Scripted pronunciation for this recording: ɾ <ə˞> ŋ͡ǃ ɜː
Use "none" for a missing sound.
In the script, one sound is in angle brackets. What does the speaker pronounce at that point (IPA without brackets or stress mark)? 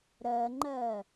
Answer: ɜ